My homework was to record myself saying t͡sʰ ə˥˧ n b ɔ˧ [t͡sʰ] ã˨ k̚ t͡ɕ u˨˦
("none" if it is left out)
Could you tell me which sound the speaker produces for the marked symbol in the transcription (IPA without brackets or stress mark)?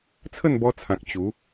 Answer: t͡sʰ